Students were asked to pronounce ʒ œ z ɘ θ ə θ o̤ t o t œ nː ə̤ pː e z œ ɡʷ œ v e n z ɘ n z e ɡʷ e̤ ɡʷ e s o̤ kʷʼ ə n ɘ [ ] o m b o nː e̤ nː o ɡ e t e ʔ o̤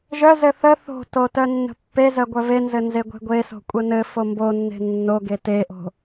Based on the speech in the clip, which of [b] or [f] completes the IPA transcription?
f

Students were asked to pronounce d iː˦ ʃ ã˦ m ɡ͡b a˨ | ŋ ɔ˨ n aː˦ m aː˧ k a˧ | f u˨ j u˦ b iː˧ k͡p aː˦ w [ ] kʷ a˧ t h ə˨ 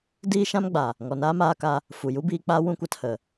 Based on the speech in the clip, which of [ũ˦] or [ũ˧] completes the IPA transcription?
ũ˦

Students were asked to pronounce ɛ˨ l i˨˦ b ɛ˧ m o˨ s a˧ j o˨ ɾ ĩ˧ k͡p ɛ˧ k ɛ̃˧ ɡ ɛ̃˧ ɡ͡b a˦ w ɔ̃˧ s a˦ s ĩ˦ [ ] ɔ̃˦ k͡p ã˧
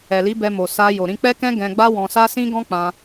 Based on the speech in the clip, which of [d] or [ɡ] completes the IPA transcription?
ɡ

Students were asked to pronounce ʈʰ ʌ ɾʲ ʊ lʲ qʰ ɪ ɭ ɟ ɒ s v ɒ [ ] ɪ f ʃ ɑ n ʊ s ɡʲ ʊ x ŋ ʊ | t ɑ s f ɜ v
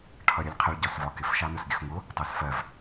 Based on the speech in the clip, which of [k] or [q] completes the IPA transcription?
k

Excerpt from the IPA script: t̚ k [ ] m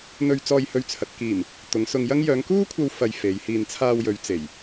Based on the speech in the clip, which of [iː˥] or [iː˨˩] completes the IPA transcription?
iː˨˩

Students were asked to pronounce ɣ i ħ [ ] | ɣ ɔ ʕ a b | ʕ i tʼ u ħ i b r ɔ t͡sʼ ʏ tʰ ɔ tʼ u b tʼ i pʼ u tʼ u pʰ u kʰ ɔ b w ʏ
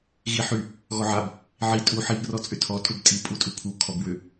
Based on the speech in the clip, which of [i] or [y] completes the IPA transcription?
y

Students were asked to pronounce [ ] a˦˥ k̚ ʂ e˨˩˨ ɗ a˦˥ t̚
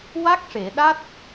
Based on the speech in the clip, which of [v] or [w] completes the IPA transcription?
w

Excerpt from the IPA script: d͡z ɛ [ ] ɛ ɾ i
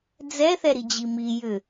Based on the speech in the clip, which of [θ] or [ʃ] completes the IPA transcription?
θ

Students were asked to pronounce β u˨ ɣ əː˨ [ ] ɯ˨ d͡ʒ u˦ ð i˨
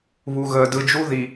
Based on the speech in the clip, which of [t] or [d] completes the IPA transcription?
d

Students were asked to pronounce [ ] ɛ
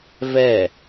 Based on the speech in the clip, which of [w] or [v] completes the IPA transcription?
v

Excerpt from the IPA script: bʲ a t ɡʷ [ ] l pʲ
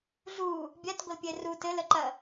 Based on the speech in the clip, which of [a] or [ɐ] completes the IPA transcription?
ɐ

